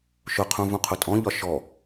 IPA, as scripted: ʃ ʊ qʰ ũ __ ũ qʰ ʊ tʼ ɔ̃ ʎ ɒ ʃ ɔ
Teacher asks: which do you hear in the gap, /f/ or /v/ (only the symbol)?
v